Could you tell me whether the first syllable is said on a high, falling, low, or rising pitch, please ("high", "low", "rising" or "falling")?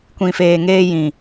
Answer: low